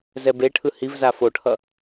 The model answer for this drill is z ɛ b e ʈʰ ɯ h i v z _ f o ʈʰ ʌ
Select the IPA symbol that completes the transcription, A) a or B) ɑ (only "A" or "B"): A